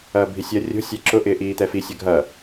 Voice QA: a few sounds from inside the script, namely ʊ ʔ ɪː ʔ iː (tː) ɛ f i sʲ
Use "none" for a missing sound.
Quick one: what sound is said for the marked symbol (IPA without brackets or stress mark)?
t̪